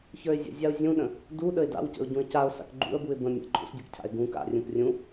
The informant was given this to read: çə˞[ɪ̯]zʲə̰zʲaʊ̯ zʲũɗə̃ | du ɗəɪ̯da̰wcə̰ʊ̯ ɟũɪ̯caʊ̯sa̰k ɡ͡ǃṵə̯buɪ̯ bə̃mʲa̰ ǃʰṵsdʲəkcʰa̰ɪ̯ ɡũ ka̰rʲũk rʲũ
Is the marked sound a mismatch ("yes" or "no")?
no